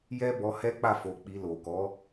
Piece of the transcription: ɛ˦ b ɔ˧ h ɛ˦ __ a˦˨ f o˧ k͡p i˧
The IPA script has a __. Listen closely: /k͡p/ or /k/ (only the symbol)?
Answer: k͡p